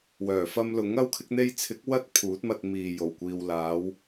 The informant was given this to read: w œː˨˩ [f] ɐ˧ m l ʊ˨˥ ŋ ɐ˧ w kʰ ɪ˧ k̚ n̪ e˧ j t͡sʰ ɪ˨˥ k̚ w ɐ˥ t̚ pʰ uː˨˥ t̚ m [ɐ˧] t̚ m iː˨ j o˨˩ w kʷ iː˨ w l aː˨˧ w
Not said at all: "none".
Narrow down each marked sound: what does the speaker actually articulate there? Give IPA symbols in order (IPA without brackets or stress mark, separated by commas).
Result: f, ɐ˧